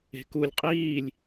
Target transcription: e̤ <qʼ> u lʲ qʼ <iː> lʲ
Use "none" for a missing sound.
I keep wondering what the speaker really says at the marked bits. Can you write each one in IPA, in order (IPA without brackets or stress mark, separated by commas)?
k, iː